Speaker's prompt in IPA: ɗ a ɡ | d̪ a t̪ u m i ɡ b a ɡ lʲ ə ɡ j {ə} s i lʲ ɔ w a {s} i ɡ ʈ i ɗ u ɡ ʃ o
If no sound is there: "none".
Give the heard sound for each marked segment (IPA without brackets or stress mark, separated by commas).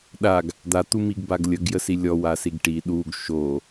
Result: ə, s